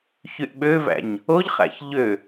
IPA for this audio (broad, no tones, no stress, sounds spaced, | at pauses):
ç y ʔ ɓ ø v æ̰ ɲ | o ʎ χ æ̰ ç ʎ ø